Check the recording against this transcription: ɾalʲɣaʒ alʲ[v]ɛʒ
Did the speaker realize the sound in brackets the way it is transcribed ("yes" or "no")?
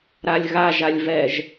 yes